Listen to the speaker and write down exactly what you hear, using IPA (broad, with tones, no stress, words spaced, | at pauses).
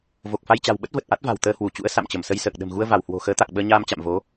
vo˨˩k̚fa˧jt͡ɕa̤˨˩wɓə˦˥t̚ və˨˩t̚ʔa˦˥t̚va̤˨˩w t̪əː˧hwu˧˩t͡ɕṵ˧˥ə̯ sa̰˧˨mt͡ɕə˧˩msə˧j səː˨˩k̚ɗə̤˨˩mɣu˧ə̯ va˧˩whwo̤˨˩ xəː˨˦t̪a˨˩k̚ ɓəː˧ɲaː˧m t͡ɕa̰˧˨mvo˨˦